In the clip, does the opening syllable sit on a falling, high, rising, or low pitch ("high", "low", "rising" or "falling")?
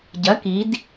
rising